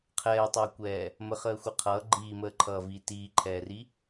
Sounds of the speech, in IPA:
qʰ ɛː tˤ əː kʷ ɛː | m ə χ əː xʷ ə qʰ ʌː ɡ͡ǃ iː m əː ǃʰ ʌː v iː t iː ǃʰ ɛː r i

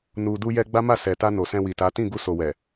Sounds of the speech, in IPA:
n u˨ d u˧ j ɛ˧ ɡ͡b a˦ m a˦˨ s ɛ˨ t a˧ n o˨ s ɛ̃˧ w i˨ t a˨˦ t ĩ˦˨ ɡ u˧ s o˨ w ɛ˨

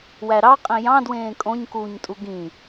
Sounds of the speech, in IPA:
w æ ɾ ɑ qʼ ĩ j ɑ̃ d w ẽː kʼ õ ɲ k uː ɲ tʼ u ɡ ĩ

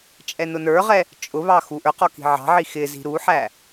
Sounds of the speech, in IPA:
t͡ʃʼ ɛ n ʊ n ə˞ ʁ ɛ | t͡ʃʼ ʊ β ɑ x u ʔ ə˞ q ɔ k i̤ ʕ ɑ̤ ʕ i x ɪ z i̤ ɾ u ħ æ

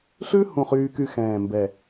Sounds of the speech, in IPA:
ɬ ʉ˥ h ũ˥˧ χ yː˥ k y˥˧ x ɛ̃ː˧˩ m b ɛ˧˩

